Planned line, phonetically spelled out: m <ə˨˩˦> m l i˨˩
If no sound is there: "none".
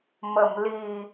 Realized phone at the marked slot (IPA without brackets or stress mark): ə˨˩˨